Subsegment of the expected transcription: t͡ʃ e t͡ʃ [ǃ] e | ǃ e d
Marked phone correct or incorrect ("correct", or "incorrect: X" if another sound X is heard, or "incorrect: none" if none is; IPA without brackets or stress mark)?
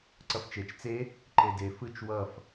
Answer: incorrect: t͡s